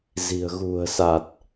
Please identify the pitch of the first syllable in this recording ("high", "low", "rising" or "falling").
low